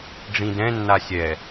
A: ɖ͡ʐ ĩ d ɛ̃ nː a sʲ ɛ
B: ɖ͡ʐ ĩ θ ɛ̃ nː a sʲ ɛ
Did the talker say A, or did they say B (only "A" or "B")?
A